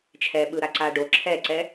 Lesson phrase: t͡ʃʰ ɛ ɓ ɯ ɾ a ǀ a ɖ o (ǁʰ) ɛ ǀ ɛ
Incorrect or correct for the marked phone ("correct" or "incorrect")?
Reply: correct